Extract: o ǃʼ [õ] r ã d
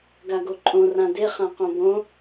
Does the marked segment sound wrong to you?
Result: no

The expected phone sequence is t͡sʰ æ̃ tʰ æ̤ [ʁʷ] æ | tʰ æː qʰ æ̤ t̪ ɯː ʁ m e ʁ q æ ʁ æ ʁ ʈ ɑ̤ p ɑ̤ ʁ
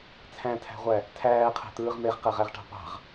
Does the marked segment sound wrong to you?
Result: no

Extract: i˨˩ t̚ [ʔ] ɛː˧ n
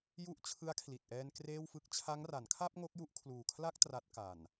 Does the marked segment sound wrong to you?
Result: no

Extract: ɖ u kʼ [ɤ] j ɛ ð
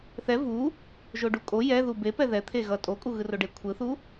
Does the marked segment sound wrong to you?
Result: yes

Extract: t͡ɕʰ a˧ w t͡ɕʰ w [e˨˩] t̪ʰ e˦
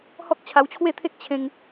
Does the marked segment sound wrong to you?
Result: yes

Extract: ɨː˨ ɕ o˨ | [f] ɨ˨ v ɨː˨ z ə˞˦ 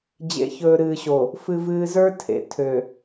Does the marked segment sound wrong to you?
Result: no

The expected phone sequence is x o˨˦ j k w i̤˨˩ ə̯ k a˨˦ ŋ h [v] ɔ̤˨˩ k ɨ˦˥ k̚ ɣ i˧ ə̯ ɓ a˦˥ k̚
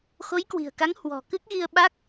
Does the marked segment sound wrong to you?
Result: yes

